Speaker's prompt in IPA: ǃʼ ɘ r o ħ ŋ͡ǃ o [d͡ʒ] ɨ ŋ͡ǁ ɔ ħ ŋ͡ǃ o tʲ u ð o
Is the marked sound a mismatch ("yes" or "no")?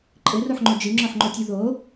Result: no